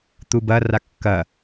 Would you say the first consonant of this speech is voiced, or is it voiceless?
voiceless